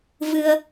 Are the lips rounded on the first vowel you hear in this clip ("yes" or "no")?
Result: no